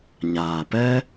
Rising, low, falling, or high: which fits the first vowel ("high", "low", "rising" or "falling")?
low